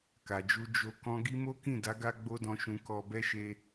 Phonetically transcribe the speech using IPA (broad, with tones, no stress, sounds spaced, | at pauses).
k a˨ d͡ʒ u˧ d͡ʒ o˧ k ɔ̃˦ ɡ i˦ m o˦ k ĩ˦˨ d a˨˦ ɡ a˧ ɡ͡b o˦ d ɔ̃˧ ʃ ũ˧ k ɔ˧ b ɛ˦ ʃ e˧